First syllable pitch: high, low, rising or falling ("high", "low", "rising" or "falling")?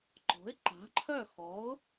rising